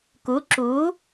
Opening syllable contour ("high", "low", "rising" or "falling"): rising